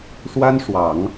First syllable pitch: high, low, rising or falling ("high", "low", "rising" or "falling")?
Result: high